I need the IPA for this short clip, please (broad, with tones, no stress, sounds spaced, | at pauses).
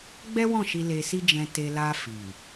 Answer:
ɡ͡b ɛ˦ w ɔ̃˦˨ ʃ i˧ l e˧ s i˦ d͡ʒ ɛ̃˧ t e˧ l a˧ f i˨